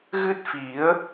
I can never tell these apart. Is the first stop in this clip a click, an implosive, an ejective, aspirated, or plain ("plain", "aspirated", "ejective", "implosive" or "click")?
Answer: plain